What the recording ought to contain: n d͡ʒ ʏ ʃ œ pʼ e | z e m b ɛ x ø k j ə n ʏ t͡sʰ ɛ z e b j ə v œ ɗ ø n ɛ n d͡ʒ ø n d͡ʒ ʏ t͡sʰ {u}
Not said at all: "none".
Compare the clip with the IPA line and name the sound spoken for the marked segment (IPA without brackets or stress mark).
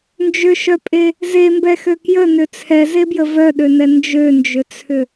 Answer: ʏ